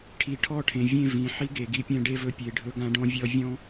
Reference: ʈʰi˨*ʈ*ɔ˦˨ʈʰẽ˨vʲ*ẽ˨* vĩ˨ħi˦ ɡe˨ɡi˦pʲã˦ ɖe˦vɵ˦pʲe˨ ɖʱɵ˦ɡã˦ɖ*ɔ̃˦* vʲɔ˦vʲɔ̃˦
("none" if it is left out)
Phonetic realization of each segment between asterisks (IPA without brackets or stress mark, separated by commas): ʈʰ, ẽ˦˨, ɔ̃˦